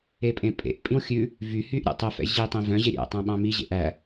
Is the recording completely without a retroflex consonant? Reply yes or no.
yes